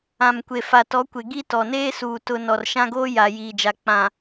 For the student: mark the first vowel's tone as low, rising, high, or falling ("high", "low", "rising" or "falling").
low